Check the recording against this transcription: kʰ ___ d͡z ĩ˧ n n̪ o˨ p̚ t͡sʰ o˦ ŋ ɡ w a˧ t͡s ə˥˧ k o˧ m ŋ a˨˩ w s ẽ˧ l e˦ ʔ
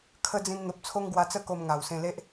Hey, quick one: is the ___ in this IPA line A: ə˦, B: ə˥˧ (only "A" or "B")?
A